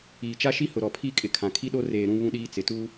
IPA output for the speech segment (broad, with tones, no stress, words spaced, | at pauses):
iː˨t͡ʃa˦ʃi˦ hʊ˨ɾɔ˨pʰi˦˨kʼɪ˨ kʰã˨kʰi˦ɗo˦ reː˨ ɾũ˦βũ˦ɗiː˦ t͡sɪ˨tu˦